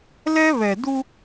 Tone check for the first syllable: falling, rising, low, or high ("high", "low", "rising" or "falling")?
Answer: high